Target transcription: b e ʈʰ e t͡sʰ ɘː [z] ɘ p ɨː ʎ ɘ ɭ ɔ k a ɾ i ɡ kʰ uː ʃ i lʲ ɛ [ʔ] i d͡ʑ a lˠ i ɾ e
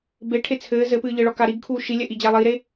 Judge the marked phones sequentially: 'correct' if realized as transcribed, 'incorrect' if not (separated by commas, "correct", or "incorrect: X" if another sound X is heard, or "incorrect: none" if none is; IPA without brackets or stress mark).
correct, correct